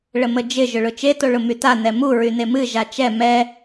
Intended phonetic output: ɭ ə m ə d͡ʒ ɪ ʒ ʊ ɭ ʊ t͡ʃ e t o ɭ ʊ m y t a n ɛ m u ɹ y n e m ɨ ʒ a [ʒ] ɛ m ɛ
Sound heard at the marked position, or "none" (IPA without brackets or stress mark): t͡ʃ